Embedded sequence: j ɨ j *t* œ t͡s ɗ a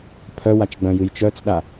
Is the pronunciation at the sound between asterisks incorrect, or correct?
incorrect